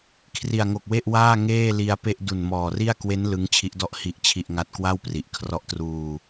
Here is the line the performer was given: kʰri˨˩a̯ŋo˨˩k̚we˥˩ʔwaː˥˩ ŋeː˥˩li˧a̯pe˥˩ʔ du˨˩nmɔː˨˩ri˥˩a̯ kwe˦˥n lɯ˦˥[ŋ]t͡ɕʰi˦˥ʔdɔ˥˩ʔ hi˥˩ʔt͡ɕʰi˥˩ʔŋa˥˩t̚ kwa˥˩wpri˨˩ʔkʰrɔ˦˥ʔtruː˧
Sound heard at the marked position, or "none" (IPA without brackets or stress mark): ŋ